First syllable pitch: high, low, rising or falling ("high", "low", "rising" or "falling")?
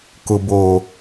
low